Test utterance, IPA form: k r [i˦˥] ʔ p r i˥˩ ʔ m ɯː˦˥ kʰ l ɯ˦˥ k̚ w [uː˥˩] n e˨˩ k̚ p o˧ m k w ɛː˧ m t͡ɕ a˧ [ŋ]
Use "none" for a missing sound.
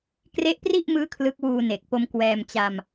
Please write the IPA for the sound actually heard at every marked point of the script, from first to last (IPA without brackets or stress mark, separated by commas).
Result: e˦˥, uː˧, m